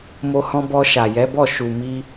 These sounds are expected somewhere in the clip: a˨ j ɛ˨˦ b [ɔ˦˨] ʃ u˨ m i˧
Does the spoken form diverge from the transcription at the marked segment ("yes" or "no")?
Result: no